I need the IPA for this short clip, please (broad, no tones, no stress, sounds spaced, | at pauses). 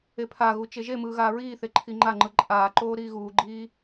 e pʰ a ɣ u t͡ʃ e ʒ e m ɯː ɣ aː ɹ iː θ e ǃʰ i ŋ͡ǃ a ŋ͡ǃ ɯ ǃʼ aː ǃ oː ɾ iː ɣ uː ɡ͡ǃ iː